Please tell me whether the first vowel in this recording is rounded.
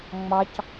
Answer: no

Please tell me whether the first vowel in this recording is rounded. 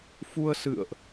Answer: yes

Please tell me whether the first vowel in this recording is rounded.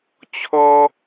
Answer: yes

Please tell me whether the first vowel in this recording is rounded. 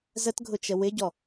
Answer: no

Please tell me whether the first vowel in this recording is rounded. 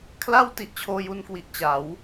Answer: no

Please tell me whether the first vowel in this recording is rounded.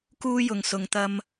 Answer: yes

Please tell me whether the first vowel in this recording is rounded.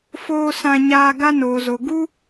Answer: yes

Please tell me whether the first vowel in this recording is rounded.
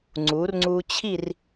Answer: yes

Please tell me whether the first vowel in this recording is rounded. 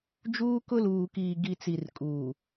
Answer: yes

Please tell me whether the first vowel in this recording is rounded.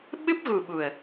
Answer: no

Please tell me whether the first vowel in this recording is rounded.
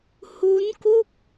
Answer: yes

